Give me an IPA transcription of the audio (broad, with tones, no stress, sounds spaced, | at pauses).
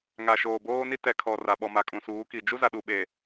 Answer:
ŋ a˨ ʃ oː˨ b oː˦ n i˦ t ɛ˨ kʰ ɔ˨ r a˨ ɓ ɔ˨ m a˨ kʼ ũ˨ s uː˨˦ k i˨ d͡ʒ u˦ z a˨ ɗ u˨ ɓ e˨